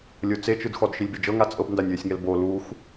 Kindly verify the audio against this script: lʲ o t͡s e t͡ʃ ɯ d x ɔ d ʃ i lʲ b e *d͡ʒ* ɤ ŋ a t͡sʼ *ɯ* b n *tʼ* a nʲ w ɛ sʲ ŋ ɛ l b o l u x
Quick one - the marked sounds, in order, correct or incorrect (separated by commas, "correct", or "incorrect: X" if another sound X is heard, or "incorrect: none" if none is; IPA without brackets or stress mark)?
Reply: correct, incorrect: ɤ, incorrect: d